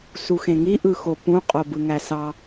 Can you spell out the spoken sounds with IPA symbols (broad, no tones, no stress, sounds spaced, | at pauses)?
s u x ẽ ŋ i ʔ ɯ x o p ũ qʼ o b ɯ ŋ æ s ɑ